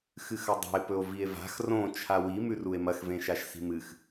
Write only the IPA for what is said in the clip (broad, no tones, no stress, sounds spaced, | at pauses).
x ɨ x ɐ dˤ a̤ e̯ p ɵ o̯ v i e̯ v a̤ x r õ t͡ʃʰ a w i m ʉ r u e̯ m ɐ x v ẽ ʃ a ʃ s i̤ m ɨ x